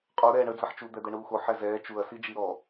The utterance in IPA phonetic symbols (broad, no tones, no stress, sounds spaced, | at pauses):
qʼ o ɾ ɛː ɳ ə d͡z ɐ ħ t͡ʃ u d̪ ɛ d̪ ɛ ɳ uː x o ħ ɛ z ɛː t͡ʃ u ɐ̯ s i d͡ʒ i ɾ ɔ